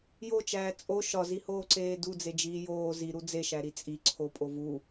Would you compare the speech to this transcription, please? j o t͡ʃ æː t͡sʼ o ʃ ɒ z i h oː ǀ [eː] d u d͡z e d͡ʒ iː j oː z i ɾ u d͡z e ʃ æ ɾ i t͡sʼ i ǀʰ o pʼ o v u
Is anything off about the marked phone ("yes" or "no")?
no